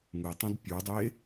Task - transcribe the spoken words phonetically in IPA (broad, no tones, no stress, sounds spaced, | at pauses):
ŋ ɯ tˤ ũ d pʲ u dˤ e